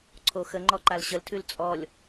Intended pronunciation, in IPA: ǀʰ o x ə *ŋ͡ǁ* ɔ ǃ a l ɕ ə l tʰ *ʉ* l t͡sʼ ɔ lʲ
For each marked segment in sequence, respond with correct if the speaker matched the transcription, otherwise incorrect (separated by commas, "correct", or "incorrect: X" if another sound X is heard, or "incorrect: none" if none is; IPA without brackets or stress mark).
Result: incorrect: ŋ͡ǃ, correct